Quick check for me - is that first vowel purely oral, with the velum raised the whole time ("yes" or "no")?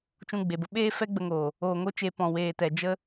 no